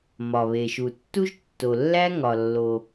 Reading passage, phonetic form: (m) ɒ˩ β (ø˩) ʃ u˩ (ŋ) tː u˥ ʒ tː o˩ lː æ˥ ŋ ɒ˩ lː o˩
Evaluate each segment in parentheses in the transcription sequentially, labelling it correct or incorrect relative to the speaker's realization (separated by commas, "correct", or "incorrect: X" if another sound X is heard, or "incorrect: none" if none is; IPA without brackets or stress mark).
correct, incorrect: e˩, incorrect: none